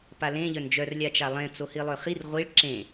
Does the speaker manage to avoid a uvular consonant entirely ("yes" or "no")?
no